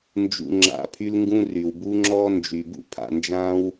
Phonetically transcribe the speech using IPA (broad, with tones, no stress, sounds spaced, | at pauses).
n d͡ʒ ṵ˨ ŋ͡ǁ a̰˨ pʰ y˦ l ŋ ɡ ũ˦ r y˩ w b u˦ ŋ͡ǁ ɔː˦ n d͡ʒ y˩ b ṵ˥ pʰ a̰˨ n d͡ʒ ãː˦ w